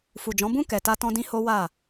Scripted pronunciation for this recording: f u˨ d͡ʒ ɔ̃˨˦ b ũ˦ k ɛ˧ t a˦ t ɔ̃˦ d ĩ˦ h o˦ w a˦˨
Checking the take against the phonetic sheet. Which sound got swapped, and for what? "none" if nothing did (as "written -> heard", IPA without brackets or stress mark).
none